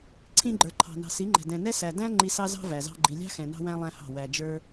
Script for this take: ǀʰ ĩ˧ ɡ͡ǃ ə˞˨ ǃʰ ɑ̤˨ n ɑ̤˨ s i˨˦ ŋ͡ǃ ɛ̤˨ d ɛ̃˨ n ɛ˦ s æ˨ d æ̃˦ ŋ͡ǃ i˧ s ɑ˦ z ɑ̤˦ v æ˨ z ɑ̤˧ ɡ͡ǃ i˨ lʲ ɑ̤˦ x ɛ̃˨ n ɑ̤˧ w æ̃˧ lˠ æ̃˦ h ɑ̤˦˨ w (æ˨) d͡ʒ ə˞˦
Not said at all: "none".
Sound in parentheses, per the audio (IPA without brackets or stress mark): æ˨